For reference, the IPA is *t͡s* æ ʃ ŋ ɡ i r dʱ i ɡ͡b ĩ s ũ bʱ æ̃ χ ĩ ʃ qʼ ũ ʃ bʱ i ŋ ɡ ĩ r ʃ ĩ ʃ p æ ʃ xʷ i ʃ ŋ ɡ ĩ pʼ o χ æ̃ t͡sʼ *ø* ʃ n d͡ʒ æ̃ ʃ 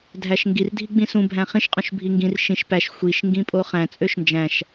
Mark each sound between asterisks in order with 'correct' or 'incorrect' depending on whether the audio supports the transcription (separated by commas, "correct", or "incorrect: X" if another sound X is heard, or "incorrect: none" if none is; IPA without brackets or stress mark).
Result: incorrect: dʱ, correct